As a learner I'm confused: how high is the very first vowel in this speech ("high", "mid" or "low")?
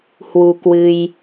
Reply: high